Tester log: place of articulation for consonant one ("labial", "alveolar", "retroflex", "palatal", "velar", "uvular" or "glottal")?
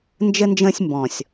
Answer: alveolar